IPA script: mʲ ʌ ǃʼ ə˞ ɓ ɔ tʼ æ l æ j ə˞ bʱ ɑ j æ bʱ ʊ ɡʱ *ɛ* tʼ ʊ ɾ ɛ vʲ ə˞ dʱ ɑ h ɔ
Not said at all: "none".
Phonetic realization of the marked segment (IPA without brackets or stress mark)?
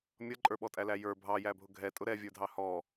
ɛ